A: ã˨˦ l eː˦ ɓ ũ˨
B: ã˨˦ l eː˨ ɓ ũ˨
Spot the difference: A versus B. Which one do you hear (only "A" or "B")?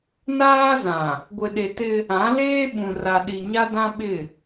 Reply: A